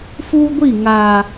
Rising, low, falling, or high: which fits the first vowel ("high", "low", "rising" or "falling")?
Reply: high